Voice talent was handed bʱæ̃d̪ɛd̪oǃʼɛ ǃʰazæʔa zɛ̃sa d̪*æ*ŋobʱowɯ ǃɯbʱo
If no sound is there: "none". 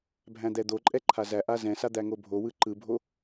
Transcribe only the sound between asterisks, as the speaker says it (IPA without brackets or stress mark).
æ